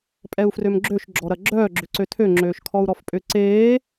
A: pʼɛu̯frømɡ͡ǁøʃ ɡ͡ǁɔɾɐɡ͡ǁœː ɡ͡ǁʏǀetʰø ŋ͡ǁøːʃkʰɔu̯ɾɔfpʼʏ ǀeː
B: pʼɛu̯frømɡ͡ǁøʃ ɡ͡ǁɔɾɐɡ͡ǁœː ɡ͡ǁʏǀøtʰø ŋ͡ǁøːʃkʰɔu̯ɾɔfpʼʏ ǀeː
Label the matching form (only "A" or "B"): B